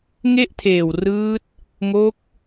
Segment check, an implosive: absent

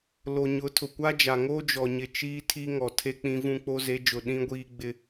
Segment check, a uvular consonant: absent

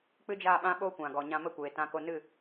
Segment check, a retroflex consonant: absent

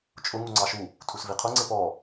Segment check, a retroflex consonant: absent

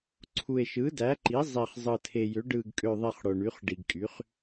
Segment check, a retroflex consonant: present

